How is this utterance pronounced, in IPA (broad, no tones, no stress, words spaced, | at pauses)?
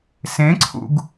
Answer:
sẽǀʰṵɡ